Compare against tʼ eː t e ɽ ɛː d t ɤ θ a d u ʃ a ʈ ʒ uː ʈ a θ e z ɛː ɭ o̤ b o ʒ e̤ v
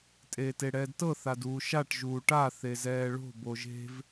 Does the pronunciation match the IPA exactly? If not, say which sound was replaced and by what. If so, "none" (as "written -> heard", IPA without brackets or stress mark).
u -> uː